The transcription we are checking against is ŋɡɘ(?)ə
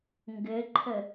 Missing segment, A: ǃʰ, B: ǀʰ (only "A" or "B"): A